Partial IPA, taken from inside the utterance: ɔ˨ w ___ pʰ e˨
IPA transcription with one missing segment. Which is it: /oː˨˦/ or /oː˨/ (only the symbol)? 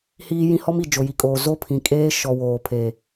oː˨